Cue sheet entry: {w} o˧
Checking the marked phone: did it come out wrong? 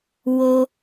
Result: no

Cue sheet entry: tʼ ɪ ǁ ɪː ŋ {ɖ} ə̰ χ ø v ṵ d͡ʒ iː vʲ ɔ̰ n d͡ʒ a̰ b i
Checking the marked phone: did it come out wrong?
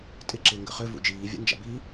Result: yes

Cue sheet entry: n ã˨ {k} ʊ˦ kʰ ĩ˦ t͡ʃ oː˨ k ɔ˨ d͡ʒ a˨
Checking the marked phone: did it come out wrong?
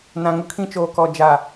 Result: yes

